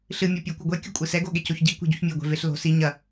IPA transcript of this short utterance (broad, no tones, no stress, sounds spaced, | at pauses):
ɬ ɨ mʲ ɔ pʲ ɐ kʷ ɨ ɡʷ ɛ kʲ ṳ kʷʼ ɨ s ɛ ɡ o ɠ e c o ç ɟ i kʷ ɛ̤ ɟ u ç mʲ e ɡʷ ɛ̤ v e ɬ l o̤ s i ɲ ɐ